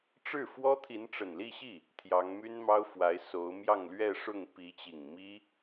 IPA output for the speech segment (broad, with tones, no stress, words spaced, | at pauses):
ʈ͡ʂɻ̩˥˩fwɔ˥ t̪ʰi˧˥nʈ͡ʂə˨˩nli˥˧ɕi˥˩ | t̪ʰjɑ˧˥ŋmy˥nmɑ˥ʊ̯fwa˧˥ɪ̯ so˧˥ʊ̯ mjɑ˥˧ŋlɥɛ˥˧ʂʊ˥˩ŋ pi˧˥t͡ɕi˨˩ŋ mi˥